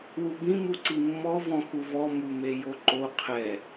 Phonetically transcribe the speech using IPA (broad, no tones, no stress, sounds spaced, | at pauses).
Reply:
w u b ĩ m u ǀ i mː ɔ v ɔ̃ x u v ɔ m u m e j o ǃ o qʰ ɛ